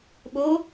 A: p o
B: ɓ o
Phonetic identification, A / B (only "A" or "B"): B